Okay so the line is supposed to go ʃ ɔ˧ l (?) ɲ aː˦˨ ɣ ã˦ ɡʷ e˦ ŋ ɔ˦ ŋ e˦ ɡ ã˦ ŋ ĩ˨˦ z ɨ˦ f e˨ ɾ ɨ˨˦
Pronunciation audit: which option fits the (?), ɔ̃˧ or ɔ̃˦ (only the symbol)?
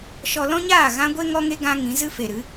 ɔ̃˦